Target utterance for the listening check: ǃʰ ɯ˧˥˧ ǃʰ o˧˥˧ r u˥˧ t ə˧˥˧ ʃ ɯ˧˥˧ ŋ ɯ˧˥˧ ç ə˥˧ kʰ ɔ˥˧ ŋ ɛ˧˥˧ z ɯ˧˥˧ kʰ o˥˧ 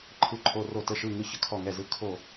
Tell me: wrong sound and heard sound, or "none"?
u˥˧ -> o˥˧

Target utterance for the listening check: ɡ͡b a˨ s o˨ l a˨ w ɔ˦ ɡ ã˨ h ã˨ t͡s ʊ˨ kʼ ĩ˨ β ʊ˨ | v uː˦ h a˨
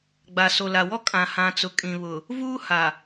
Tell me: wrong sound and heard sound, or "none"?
ɡ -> kʼ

